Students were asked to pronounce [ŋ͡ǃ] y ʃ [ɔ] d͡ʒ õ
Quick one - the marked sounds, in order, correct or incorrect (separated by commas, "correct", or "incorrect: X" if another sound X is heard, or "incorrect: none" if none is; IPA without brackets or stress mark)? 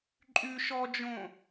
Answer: incorrect: ǃʼ, correct